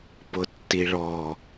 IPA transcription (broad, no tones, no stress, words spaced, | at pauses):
pʊtːiɭɔ